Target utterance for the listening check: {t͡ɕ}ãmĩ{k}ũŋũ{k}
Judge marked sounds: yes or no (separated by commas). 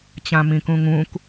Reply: yes, yes, yes